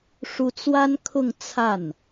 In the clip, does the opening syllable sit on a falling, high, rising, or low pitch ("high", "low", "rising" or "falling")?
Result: rising